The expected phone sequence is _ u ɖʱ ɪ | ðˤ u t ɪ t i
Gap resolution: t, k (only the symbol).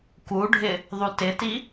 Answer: k